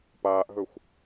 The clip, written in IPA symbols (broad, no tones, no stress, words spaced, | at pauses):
paːʔɦɵxʷ